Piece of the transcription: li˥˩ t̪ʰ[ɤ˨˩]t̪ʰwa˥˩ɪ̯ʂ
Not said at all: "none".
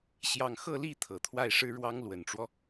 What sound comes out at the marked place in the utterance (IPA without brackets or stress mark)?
ɤ˨˩